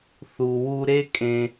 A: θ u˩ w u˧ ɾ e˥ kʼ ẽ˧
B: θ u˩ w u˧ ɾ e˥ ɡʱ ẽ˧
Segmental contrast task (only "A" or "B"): A